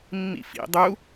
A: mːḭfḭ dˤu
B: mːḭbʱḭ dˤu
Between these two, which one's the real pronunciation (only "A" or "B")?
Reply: A